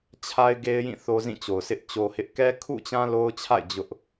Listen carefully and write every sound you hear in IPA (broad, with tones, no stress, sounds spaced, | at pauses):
t͡ɕʰ a˦ ɪ̯ ɡ e˦ ɪ̯ j ĩ˦˨ θ o˦ z ĩ˦˨ t͡ɕ o˨ ʊ̯ s ɪ˦ ʔ t͡ɕ o˦ h ɪ˦ ʔ k ɛ˦ kʰ ṵ˦˨ t͡ɕ ã˦ l o˦ ʊ̯ t͡ɕʰ a̰˦˨ ɪ̯ d͡ʑ ʊ˦ ʔ